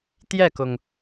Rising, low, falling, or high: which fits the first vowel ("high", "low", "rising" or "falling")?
falling